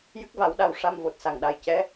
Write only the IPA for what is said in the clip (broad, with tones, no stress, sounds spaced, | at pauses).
j ɨ˦˥ k̚ v a˨˩˦ w ɗ a˨˩ w ʂ a˧ m v o˨˩ t̚ s a˨˩ ŋ ɗ a˨˩ j c ɛ˧˥